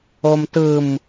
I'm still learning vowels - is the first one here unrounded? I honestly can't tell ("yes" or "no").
no